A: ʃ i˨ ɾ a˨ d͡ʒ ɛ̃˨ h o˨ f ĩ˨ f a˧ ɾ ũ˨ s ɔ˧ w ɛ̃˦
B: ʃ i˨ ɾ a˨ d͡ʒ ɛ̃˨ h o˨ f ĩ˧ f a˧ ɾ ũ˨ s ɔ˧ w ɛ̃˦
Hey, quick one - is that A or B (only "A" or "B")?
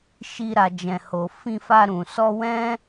B